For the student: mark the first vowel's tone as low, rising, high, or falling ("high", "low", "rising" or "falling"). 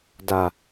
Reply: low